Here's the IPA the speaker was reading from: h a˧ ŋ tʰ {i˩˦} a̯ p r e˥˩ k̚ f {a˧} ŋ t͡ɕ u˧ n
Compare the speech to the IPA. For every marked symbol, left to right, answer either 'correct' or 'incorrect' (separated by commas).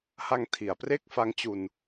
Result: correct, incorrect